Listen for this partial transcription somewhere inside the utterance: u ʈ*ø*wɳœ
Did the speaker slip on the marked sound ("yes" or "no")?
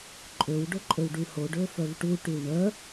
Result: yes